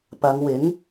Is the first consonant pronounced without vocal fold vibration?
yes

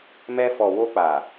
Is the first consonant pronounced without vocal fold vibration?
no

